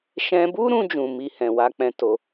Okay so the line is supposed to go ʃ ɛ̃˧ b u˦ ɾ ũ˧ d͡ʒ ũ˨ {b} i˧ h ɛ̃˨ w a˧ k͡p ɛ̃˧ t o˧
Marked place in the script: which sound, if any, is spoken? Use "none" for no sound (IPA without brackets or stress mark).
m